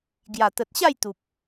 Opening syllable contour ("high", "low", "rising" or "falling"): low